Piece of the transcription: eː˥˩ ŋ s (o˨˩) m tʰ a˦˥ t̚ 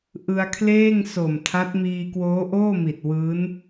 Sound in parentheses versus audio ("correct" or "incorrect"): correct